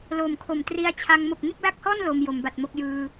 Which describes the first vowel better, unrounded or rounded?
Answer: rounded